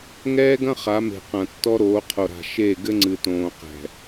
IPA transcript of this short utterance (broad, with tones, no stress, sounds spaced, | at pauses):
ŋ ɛː˦ ɡ ɐ̃˦ χ a˨˦ m e̤˨ q ɐ̃˨ tː ɔ˦ ɾ oː˨˦ qʰ o˨ ɾ a̤˨ ʃ e˦˨ ɡ ɘ˦ ŋ͡ǀ ɨ˨ t õː˨ q ɛ̤˨